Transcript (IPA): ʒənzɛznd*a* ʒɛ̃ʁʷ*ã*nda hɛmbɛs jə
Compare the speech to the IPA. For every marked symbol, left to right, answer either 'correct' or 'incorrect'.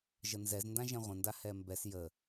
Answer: incorrect, incorrect

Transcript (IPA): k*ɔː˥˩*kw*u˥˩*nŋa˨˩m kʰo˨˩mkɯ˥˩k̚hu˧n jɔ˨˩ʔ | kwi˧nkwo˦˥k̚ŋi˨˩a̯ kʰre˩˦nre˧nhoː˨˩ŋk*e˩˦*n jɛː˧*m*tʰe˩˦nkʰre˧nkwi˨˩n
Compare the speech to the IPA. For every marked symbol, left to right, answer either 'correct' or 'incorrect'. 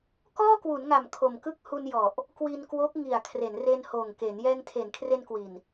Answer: correct, incorrect, correct, incorrect

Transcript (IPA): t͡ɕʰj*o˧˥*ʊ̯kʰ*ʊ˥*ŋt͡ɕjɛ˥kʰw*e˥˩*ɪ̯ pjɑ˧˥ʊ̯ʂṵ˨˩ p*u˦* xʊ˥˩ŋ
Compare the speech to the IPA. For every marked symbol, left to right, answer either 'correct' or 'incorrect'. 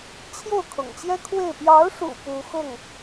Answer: incorrect, incorrect, correct, incorrect

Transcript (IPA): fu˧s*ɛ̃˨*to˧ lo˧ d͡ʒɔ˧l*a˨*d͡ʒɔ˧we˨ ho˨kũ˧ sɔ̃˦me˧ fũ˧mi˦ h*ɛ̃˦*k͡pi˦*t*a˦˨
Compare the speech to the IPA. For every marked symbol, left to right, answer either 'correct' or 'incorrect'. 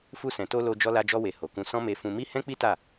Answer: correct, incorrect, correct, correct

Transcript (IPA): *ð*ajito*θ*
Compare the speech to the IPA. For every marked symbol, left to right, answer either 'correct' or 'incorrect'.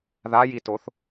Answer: correct, correct

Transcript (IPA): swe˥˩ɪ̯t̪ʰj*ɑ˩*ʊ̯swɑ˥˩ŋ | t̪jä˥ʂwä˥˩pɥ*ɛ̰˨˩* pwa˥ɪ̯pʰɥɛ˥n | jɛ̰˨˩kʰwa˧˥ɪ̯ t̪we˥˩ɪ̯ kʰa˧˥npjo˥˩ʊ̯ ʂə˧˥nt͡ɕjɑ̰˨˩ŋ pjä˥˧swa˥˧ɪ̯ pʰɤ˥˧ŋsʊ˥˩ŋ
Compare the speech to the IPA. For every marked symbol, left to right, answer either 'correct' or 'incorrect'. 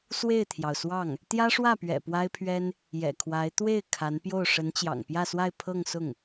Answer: correct, correct

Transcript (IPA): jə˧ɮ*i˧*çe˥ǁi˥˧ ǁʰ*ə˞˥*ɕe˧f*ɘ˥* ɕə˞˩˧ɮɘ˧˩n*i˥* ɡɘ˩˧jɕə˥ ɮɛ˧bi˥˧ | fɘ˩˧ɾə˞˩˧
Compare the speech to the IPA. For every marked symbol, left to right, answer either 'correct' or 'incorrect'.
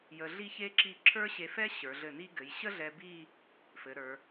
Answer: incorrect, correct, incorrect, correct

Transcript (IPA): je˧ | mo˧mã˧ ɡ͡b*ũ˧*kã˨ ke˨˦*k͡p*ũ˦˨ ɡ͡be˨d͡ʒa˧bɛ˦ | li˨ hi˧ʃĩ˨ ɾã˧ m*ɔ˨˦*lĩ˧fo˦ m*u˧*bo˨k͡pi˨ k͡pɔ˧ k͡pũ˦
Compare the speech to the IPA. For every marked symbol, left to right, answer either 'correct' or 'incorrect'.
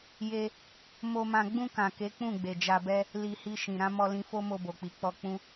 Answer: correct, correct, incorrect, incorrect

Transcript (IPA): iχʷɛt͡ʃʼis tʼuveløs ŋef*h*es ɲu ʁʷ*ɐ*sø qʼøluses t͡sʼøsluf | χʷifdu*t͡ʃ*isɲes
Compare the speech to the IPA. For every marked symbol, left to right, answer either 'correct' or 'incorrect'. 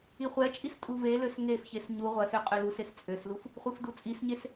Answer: incorrect, correct, incorrect

